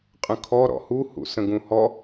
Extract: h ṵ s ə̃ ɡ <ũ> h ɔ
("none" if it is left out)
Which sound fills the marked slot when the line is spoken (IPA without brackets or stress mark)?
ũ